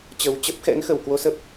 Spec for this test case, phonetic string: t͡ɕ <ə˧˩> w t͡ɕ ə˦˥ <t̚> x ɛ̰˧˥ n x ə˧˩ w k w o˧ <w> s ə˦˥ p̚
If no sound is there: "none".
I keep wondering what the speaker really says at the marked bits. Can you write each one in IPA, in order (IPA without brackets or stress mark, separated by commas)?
ə˨˩, p̚, none